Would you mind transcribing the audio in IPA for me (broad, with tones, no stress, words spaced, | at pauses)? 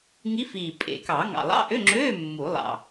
ŋi˧˥fiː˨˩ pʼḛ˨˩˦kɑ˨˩˦ ŋɑ̰˨˩lˠɑ̰˧˥˧ʔø˧˥˧ŋ͡ǁøː˧˥˧ mːu˨˩˦ lˠɑ̰˨˩